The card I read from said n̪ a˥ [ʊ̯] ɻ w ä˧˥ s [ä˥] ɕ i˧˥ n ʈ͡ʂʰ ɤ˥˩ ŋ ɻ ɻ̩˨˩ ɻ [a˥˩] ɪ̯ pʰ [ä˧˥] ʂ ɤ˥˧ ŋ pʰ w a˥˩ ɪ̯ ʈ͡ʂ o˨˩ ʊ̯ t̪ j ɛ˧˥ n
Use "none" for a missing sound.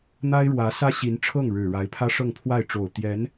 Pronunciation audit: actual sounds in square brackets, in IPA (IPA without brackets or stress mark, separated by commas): ɪ̯, ä˥, a˧˥, ä˥